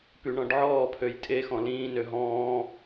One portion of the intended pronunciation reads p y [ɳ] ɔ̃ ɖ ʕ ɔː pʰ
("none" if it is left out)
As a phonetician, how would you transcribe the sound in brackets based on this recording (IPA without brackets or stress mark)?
ɳ